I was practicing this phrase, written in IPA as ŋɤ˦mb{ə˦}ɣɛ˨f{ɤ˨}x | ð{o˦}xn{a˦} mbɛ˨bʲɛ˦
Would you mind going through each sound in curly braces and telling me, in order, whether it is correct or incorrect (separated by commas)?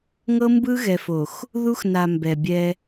incorrect, incorrect, incorrect, incorrect